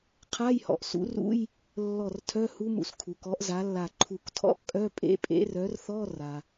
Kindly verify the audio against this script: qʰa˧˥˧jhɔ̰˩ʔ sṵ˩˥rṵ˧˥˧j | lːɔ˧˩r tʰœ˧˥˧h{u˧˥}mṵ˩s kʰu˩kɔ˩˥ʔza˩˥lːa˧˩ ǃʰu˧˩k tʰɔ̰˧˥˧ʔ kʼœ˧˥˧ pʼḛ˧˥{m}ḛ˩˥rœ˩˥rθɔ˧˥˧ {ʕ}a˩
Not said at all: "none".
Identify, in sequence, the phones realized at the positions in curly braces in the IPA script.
u˧˥, pʼ, r

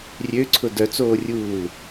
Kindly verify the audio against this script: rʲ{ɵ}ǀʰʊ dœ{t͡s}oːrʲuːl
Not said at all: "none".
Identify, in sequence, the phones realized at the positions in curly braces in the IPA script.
ø, t͡s

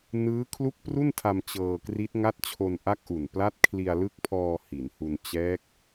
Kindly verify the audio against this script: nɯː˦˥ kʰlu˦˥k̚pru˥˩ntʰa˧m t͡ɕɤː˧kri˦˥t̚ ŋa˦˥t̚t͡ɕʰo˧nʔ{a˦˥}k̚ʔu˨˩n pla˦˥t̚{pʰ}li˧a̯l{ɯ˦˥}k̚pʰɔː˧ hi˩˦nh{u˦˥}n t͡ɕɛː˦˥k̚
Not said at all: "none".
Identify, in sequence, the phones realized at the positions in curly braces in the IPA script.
a˦˥, kʰ, ɯ˦˥, u˧

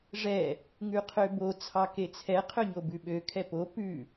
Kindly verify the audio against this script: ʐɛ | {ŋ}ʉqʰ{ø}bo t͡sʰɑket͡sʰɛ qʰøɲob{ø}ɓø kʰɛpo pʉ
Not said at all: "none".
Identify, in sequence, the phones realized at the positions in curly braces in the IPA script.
ŋ, ø, ʉ

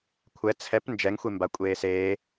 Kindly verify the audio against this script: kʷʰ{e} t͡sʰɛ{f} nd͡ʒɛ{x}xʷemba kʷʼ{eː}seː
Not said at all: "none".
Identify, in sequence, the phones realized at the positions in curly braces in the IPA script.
ɛ, p, ŋ, eː

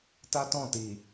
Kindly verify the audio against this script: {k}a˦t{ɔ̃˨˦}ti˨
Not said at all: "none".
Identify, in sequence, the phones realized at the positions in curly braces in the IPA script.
t, ɔ̃˦˨

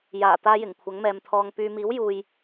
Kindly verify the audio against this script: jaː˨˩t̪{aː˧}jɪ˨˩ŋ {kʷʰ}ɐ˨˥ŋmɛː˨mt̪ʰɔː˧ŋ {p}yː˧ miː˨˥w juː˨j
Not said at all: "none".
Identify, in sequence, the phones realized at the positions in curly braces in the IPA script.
aː˧, kʷʰ, p

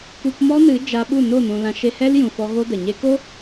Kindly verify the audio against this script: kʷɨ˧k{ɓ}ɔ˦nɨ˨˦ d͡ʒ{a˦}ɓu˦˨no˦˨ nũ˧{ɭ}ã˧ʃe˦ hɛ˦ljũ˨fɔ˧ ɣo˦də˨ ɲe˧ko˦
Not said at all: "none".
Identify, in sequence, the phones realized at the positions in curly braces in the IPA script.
m, a˧, l

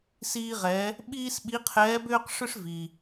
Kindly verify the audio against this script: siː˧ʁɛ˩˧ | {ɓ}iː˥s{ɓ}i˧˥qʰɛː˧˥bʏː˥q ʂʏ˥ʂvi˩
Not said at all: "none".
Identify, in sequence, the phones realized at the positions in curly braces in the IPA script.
ɓ, ɓ

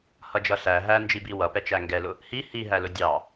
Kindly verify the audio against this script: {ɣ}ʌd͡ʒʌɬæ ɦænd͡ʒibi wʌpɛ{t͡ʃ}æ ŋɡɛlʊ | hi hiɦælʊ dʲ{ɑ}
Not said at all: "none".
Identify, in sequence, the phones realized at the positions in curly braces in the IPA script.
h, t͡ʃ, ɑ

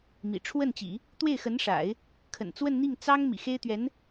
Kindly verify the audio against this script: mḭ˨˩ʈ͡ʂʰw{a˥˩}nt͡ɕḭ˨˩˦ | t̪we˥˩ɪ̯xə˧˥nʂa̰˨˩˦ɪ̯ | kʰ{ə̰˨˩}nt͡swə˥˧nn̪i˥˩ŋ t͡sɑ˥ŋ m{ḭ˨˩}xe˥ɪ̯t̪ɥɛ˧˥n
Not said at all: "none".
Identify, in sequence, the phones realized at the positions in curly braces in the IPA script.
ə˥˩, ə̰˨˩, ḭ˨˩

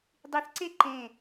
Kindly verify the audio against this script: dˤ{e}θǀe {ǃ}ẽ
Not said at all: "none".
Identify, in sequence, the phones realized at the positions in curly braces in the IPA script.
i, ǃ

